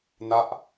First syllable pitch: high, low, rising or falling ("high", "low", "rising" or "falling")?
falling